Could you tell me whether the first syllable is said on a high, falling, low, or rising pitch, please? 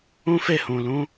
high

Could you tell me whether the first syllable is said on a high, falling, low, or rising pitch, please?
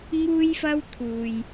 high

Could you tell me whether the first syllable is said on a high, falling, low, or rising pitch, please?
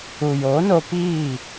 low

